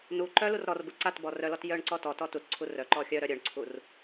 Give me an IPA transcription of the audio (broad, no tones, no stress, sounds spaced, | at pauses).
n u ǃ œ l u r ɾ ɔ r b u ǀ a t b ɔ r œ l ɔ t j œ ɳ ǀ ɔ t ɔ t ɔ t u t ǀʰ u r œ ǃ ɔ xʲ œ ɾ œ ɾʲ œ ɳ ǀʰ u r